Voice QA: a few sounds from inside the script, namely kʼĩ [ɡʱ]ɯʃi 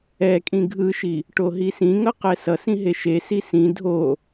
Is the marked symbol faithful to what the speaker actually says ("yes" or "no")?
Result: yes